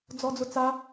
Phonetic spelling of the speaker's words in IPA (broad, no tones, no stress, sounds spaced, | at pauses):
d͡z ɔ d͡z ʊ t͡s a